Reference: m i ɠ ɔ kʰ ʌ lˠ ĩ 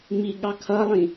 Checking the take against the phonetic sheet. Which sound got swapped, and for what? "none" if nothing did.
ɔ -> ɑ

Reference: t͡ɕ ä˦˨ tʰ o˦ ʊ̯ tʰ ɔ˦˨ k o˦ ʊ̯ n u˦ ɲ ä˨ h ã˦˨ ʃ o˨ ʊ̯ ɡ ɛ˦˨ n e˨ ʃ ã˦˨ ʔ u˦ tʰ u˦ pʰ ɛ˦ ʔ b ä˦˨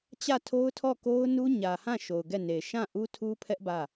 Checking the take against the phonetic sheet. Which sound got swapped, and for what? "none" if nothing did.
none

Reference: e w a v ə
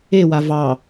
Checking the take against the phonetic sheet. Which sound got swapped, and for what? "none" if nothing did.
ə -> ɑ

